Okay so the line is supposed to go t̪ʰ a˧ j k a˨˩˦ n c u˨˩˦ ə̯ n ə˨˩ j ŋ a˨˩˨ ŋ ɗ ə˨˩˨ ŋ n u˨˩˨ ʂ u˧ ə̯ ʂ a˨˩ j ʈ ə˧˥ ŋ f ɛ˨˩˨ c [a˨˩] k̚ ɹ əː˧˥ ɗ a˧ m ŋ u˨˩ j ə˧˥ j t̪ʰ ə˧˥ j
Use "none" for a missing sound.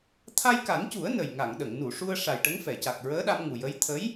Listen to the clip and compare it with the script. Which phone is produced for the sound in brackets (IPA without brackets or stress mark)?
a˨˩